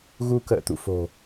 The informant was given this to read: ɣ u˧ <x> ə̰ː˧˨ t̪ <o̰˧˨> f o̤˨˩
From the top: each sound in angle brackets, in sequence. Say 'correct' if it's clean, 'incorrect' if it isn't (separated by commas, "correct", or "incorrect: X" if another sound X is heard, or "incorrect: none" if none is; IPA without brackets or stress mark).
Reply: incorrect: k, incorrect: ṵ˧˨